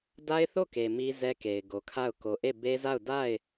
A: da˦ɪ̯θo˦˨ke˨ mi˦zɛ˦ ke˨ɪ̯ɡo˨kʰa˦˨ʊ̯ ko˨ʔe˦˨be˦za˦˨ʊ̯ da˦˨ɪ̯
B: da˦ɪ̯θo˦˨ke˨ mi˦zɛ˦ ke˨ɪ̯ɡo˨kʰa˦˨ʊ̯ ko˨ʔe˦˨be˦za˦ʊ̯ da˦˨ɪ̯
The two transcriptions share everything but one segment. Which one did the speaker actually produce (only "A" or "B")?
A